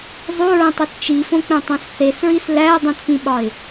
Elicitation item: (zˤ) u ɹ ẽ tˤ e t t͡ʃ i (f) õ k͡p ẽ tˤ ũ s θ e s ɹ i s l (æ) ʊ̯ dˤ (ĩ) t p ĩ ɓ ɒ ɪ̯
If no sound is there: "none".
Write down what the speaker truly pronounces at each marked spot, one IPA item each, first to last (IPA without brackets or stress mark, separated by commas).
zˤ, f, æ, ĩ